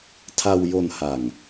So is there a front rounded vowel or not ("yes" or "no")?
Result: no